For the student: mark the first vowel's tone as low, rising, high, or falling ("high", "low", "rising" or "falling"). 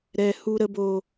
high